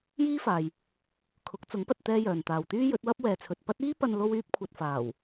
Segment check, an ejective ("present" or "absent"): absent